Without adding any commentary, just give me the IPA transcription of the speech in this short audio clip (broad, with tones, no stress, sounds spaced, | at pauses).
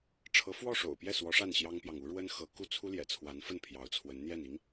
ʈ͡ʂʰ ɤ˧˥ f w ɔ˥˩ ʂ o̰˨˩ ʊ̯ p j ɛ˥˩ s w ɔ˧˥ ʂ a˥˩ n ɕ j ɑ˥ ŋ p j ɑ˨ ŋ u˧˥ ɻ w ə˥ n x ɤ˧˥ k u˥˩ t͡sʰ u˥ l j ɛ̰˨˩ t͡sʰ w a˧˥ n f ə˥˩ n pʰ j ɑ˧˥ ʊ̯ t͡sʰ w ə˧˥ n n̪ j ɛ˥˩ n i˧˥ ŋ